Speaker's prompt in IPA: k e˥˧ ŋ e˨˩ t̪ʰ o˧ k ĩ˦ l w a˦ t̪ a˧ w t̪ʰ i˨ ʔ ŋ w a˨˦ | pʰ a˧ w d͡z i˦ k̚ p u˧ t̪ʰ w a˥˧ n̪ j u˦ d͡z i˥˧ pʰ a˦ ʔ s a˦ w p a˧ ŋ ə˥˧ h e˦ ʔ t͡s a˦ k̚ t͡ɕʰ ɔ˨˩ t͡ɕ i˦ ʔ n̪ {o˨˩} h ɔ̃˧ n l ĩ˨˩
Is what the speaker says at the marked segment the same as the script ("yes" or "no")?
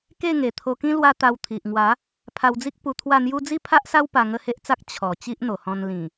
yes